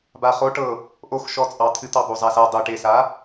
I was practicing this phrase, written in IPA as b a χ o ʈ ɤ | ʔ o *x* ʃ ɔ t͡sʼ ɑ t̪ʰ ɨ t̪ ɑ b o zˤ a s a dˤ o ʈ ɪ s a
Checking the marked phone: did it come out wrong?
no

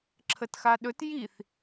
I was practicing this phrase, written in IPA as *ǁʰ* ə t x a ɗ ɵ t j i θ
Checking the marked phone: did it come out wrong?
no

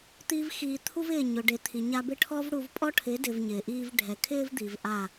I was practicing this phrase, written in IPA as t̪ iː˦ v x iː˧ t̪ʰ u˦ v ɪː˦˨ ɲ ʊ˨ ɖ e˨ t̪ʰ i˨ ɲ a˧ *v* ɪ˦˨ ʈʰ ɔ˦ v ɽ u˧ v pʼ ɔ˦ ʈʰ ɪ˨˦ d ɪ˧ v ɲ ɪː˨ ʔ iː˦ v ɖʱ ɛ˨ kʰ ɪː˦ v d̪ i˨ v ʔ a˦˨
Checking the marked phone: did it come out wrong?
yes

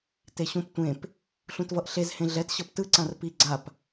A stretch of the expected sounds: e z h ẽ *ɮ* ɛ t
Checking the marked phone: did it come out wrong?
no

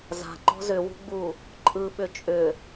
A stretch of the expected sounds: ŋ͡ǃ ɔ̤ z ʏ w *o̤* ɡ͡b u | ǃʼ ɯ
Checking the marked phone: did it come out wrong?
yes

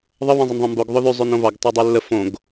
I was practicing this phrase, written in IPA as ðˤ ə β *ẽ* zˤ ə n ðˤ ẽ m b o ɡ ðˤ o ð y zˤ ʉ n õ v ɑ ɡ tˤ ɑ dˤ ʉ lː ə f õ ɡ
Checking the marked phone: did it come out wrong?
no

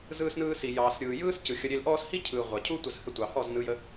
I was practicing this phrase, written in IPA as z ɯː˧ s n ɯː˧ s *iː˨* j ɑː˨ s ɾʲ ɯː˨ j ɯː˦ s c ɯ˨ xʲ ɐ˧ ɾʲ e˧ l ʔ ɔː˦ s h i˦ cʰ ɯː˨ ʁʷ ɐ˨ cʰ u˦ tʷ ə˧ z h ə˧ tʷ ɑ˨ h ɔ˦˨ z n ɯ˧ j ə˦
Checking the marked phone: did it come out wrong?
yes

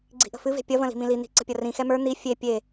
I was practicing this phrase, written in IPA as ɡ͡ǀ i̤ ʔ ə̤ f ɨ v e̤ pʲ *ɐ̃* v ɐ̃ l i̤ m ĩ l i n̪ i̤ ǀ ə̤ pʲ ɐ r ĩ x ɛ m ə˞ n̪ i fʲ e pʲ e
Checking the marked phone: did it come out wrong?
yes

